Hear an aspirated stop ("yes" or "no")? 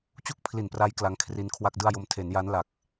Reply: yes